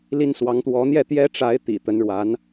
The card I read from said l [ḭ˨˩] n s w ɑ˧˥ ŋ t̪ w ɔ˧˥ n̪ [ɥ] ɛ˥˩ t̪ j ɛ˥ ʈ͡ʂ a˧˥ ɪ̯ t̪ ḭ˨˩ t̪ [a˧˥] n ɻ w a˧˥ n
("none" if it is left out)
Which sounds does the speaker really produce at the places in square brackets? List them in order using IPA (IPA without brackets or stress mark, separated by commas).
i˥, j, ə˧˥